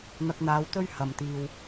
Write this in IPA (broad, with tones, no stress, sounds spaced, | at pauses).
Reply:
n̪ ɐ˧ k̚ n̪ aː˨˧ w t̪ ɵ˥ ɥ h ɐ˨˩ m t̪ iː˨ w